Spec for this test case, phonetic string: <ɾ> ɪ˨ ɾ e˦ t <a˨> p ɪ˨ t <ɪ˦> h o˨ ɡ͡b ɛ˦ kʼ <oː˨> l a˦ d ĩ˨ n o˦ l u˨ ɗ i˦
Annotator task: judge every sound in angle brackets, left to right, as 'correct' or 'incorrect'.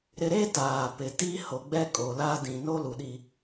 correct, incorrect: aː˨, incorrect: i˦, incorrect: o˨

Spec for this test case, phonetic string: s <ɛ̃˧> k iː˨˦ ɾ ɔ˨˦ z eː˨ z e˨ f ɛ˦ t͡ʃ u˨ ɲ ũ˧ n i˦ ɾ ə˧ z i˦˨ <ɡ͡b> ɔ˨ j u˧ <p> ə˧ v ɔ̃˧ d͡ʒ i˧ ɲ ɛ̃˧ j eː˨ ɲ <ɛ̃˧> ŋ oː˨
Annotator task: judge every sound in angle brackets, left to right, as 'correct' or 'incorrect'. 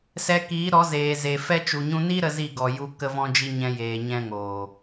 incorrect: ɛ˧, incorrect: ɡ, incorrect: k, correct

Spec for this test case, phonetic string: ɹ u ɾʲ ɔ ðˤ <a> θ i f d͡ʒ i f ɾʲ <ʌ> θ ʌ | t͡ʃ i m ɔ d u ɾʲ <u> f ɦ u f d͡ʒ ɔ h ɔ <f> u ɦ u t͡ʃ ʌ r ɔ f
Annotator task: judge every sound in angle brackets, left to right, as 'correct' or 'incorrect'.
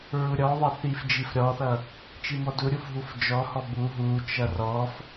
incorrect: ʌ, incorrect: ɔ, correct, incorrect: b

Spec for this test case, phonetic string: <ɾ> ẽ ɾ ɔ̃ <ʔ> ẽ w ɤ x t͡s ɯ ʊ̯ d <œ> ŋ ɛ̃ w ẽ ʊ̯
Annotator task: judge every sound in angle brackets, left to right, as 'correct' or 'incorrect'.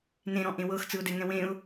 incorrect: n, correct, incorrect: ɛ

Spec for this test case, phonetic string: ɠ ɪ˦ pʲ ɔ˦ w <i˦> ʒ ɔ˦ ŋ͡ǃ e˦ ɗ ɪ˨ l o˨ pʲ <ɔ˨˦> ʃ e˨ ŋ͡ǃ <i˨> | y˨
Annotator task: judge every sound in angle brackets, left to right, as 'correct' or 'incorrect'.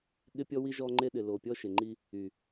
correct, incorrect: ɔ˦, incorrect: i˦

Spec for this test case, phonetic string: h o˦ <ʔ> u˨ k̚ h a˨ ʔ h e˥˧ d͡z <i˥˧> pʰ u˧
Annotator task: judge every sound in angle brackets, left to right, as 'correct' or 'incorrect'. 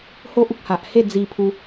correct, incorrect: i˧

